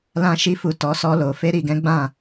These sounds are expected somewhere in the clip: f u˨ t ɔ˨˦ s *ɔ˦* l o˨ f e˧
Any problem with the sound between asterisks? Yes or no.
yes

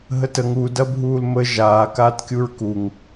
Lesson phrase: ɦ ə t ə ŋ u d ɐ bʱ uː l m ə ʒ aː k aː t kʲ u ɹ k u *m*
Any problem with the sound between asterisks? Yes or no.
yes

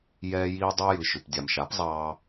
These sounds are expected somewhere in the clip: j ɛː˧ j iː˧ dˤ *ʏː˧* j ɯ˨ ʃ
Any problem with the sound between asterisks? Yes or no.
no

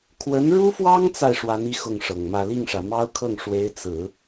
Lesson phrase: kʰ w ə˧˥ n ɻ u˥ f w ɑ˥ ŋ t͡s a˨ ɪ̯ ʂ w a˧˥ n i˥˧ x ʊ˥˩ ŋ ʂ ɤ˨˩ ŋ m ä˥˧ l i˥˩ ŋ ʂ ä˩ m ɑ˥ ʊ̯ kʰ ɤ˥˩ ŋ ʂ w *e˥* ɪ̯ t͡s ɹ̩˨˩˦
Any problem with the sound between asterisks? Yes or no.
yes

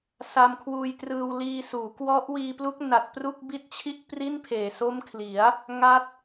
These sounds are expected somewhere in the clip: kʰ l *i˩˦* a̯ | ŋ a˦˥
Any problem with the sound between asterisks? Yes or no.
no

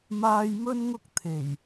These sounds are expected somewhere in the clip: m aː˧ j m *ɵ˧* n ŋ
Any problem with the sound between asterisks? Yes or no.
yes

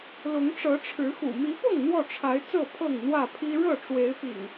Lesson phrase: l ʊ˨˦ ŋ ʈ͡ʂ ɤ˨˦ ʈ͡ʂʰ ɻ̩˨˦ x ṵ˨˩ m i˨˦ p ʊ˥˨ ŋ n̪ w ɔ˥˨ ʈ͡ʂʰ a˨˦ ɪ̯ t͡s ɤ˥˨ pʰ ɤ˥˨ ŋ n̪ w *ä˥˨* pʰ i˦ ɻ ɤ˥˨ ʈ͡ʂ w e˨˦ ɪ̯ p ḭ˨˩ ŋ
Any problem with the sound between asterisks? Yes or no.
no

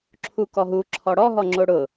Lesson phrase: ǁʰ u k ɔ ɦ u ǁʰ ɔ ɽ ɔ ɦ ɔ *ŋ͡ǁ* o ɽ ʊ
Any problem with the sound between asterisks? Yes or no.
no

